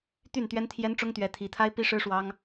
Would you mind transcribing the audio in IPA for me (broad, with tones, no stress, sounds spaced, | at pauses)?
t̪ y˥˩ n t̪ ɥ ɛ˥ n t̪ʰ j ɛ˥ n ʈ͡ʂ ʊ˥ ŋ t̪ ɥ ɛ˧˥ t̪ʰ i˧˥ t̪ʰ a˥ ɪ̯ p i˥ ʂ ɻ̩˥ ʂ w ɑ˥ ŋ